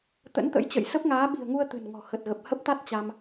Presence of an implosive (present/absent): present